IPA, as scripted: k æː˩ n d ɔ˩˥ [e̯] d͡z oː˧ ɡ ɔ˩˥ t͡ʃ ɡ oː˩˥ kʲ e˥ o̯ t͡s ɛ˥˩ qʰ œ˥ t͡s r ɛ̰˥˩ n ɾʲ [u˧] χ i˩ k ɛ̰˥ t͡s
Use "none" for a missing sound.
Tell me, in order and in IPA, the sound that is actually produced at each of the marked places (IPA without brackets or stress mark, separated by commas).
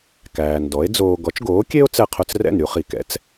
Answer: e̯, u˧